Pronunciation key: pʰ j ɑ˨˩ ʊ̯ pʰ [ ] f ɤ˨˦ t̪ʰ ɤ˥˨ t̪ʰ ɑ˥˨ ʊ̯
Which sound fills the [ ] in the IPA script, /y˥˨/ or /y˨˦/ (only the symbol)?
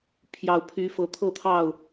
y˨˦